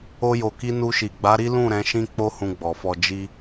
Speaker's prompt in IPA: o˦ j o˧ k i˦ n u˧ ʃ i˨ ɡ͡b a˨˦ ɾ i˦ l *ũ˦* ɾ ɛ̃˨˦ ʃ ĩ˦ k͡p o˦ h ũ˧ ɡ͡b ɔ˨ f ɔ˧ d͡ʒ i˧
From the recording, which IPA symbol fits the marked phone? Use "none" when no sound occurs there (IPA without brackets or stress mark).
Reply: ũ˦˨